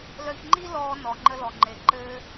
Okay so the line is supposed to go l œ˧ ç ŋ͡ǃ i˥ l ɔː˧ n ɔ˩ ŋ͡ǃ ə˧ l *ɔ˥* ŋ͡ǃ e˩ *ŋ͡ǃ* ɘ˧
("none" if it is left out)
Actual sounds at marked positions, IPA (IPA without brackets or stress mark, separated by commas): ɔ˩, ǃ